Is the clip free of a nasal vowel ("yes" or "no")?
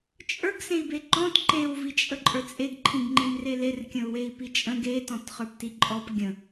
no